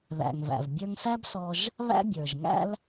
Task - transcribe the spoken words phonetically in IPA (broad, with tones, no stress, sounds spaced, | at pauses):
ð æ̰˩ ŋ v æ̰˩ v bʲ ə˞˧ ŋ s æ˥ b s ɔ˧ ʒ | β æ̰˥ bʲ ə˞˩ ʒ ŋ æ̰˥ l